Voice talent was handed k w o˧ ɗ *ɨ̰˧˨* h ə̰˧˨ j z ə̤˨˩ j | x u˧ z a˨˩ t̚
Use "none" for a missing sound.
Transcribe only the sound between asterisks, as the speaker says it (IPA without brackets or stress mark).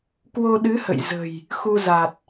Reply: ɨ˨˦